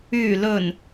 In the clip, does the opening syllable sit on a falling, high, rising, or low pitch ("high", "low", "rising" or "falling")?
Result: low